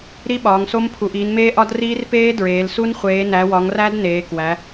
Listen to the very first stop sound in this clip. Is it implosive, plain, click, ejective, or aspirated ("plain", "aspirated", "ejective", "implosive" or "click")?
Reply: implosive